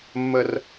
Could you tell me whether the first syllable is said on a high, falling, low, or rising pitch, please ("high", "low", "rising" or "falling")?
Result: high